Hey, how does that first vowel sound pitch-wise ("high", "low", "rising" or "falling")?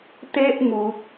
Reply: high